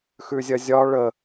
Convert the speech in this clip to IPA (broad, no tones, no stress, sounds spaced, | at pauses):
x ʉ zʲ ɐ zʲ ɒ ɭ ə